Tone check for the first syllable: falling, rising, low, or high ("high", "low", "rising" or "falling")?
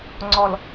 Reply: low